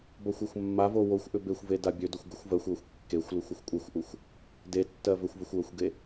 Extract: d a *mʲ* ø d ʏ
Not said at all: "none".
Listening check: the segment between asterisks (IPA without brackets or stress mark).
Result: bʲ